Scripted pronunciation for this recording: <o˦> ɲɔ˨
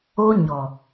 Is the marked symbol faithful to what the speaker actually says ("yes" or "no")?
yes